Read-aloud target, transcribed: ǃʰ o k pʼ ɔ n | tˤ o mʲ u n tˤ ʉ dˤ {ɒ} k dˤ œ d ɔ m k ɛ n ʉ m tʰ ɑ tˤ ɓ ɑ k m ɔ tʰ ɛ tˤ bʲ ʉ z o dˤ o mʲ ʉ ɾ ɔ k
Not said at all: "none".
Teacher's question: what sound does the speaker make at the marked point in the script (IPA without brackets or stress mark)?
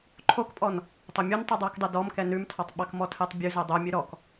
ɑ